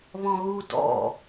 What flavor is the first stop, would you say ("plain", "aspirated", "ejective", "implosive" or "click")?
plain